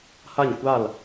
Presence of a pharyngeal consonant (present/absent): absent